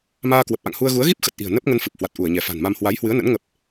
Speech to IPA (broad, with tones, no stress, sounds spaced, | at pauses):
m aː˧ k w ə˨˩ p̚ ʔ a̰˧˨ ŋ h u˧ ə̯ ɣ u˨˦ ə̯ ɣ i˦˥ p̚ x ə˨˩ t̚ ʔ i̤˨˩ ə̯ n ə˦˥ p̚ ŋ ə˧ n f ɨ˨˩ p̚ h w a˨˩ t̚ ʔ u˧˩ ə̯ ɲ ɛ˧˩ f a̤˨˩ n m a˧ m h w a˨˦ j h w ɨ˨˦ ə̯ n ə̰˧˥ n ŋ ə˦˥ p̚